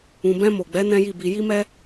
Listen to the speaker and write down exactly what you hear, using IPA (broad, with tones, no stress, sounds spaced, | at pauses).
ũ˨ b ɛ̃˧ m o˨ ɡ͡b ɛ˨˦ n ɛ̃˦ j i˦˨ b i˧ j i˦ m ɛ˦